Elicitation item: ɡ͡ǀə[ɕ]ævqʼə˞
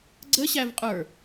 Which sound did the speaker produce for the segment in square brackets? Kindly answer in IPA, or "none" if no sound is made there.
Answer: ɕ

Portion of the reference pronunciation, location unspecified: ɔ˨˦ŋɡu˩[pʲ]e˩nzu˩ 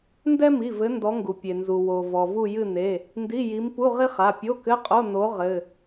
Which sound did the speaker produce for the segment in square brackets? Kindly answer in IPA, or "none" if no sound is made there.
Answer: pʲ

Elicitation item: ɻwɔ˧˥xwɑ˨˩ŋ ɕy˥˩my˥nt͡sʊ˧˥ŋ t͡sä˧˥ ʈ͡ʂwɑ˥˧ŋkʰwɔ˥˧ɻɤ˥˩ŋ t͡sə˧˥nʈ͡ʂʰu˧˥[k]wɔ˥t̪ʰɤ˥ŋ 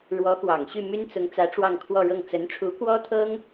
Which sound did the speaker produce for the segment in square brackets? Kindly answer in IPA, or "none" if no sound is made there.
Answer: k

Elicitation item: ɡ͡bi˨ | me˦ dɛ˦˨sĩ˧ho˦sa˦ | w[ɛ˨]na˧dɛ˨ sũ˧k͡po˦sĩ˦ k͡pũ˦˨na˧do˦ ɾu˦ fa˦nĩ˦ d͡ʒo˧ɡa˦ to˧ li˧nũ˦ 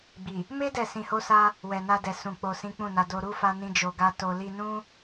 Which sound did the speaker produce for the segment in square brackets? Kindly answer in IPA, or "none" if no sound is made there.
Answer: ɛ˨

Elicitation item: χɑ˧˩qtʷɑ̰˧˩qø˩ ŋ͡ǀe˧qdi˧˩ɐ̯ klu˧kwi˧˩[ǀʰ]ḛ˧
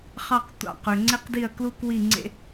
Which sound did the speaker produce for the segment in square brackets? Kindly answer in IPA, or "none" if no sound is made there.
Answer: ŋ͡ǀ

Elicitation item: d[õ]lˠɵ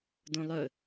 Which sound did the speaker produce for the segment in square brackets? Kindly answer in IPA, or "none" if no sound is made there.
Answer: õ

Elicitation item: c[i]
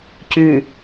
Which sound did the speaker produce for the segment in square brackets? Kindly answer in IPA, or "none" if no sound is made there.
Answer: y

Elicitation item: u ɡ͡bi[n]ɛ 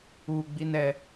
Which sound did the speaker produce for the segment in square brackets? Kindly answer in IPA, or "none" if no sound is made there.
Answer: n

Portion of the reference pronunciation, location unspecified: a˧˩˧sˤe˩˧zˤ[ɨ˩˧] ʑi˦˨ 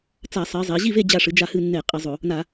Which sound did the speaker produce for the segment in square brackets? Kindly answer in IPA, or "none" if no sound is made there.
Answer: e˩˧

